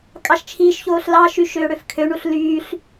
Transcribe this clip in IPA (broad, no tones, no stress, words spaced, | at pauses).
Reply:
kʼɑʃt͡ʃʰiːʃçoːɬ lɑʃy ʃøːɽøfkʰøɳuɬ lyːɬ